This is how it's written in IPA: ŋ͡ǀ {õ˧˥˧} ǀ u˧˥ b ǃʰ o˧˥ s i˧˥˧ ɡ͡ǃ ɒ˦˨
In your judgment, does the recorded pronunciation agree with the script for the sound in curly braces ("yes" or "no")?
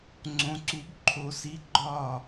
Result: no